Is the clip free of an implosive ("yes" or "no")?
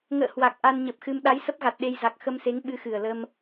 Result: no